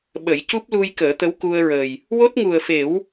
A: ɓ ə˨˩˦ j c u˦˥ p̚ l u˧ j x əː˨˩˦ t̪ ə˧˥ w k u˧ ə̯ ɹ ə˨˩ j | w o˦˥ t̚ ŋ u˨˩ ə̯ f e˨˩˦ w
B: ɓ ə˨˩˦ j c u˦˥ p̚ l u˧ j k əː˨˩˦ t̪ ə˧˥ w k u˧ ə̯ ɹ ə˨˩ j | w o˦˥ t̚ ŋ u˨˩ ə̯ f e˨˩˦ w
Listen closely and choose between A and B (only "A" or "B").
B